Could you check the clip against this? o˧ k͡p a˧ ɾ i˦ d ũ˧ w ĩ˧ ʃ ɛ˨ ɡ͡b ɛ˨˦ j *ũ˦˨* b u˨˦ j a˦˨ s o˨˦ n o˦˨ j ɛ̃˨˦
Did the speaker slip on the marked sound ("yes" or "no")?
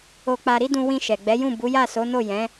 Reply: no